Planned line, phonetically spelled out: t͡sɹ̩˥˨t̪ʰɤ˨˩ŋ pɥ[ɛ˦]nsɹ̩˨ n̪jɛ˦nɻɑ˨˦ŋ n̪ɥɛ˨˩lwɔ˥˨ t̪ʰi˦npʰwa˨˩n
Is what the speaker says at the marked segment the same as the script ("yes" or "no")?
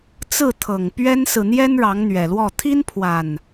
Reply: yes